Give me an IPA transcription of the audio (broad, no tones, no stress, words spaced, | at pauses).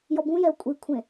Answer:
jɔbũjɛo̯ kʷʼikʷʰẽ